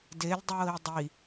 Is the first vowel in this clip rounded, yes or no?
no